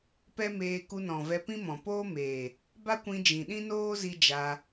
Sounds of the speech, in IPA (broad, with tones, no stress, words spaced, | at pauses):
pɛ˦meː˧ ku˧nɔ̃˨vɛ˧pĩ˦ mɔ̃˨poː˦meː˨ | ba˦kʷĩ˧ d͡ʒĩ˨ɗĩ˦noː˦ zi˦ d͡ʒa˧